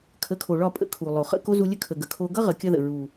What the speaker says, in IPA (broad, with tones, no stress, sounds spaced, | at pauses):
kʰ ə˨˦ kʰ o˨ ɭ ɒ˦˨ pʼ ə̰˧ kʰ u˨ lˠ o˨ χ ə̰˦˨ k o˦ z u˧ lʲ ə˦ kʰ ə˨ ɡ ə˨ kʰ o˧ ɡ ʌ˦ ʁ ə˨˦ kʲ ʌ˦ ð ə̰˨ ɹ u˨